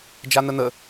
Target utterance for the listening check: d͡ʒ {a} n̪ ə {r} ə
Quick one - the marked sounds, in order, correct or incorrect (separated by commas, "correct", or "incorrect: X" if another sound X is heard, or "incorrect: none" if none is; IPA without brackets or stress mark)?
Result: correct, incorrect: n̪